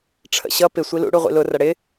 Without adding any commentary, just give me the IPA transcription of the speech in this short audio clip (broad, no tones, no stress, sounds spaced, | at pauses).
ʈ͡ʂʰ ə̰ ɕ ʌ p ɪ sʷ i l ṵ ɽ u ʁʷ ḭ l ʊ r ʌ ɽ ɪ